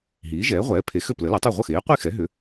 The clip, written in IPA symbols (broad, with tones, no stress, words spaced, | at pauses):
ɦiː˩˥ʒɛː˩˥ʁʷɛː˩˥pʰe˩˥ xø˥˩plə˩˥lɐ˩˥tˤu˥˩ ʁʷə˥˩xeː˩˥qʷi˥˩xɛ˩˥ ɦʏ˩˥